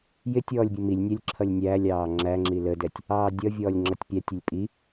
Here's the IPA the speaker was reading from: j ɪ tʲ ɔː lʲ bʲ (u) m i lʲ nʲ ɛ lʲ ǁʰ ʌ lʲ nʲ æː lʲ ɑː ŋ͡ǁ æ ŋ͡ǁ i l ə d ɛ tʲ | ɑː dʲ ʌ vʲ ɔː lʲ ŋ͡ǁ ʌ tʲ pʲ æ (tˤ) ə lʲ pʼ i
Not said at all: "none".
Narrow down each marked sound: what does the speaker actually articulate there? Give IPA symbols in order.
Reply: u, tʲ

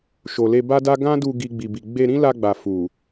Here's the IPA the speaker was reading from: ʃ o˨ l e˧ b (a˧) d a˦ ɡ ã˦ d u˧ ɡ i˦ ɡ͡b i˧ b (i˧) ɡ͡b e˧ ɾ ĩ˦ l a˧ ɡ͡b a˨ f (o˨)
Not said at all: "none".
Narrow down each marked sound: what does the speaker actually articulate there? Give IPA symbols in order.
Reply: a˦, i˧, u˨

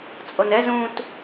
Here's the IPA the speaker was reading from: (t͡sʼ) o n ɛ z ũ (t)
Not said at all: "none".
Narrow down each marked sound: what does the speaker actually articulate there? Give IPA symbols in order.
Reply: t͡sʼ, t

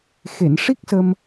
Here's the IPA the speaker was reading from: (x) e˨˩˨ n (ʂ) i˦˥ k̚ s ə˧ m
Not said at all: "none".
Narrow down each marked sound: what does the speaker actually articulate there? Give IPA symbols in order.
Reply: x, ʂ

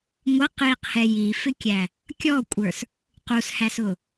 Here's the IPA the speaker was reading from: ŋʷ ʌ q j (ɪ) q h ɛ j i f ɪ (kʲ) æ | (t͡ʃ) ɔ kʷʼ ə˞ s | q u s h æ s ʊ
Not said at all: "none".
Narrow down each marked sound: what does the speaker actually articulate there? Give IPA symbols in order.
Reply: i, kʲ, kʲ

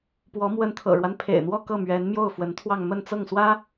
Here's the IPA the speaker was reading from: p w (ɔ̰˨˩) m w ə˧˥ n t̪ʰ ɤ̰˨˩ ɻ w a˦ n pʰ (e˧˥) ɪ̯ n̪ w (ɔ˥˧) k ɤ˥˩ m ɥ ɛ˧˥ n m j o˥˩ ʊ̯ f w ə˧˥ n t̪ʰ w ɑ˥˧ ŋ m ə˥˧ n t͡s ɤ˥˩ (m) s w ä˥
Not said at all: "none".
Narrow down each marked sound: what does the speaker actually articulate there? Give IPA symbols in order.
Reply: ɔ˧˥, ḛ˨˩, ɔ˥˧, ŋ

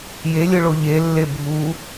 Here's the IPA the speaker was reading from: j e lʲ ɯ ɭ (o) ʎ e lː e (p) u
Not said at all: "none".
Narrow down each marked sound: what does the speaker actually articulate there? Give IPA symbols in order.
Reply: o, bʱ

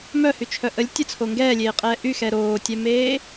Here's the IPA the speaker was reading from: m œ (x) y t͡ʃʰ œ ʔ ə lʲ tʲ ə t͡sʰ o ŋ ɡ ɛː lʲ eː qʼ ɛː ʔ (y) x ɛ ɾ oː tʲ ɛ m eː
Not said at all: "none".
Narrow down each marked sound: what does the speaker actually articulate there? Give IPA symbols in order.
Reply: h, y

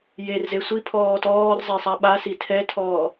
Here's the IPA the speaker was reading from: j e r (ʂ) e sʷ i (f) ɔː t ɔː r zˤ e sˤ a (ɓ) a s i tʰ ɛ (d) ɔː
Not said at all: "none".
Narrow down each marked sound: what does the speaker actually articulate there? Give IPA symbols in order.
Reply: z, pʰ, ɓ, tʰ

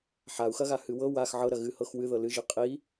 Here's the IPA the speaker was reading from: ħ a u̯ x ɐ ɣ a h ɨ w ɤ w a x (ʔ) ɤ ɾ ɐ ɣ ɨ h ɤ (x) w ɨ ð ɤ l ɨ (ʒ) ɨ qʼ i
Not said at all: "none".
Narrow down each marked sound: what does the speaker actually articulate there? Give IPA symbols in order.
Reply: ʕ, x, ʒ

